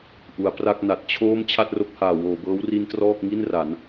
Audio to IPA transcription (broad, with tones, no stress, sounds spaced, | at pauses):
ʔ u˩˦ a̯ p r a˥˩ k̚ n a˨˩ t̚ t͡ɕʰ oː˥˩ m t͡ɕʰ a˥˩ t̚ r o˦˥ k̚ h aː˨˩ w oː˨˩ b ɤː˦˥ w r i˦˥ n t r ɔː˥˩ k̚ ŋ i˥˩ n r a˩˦ n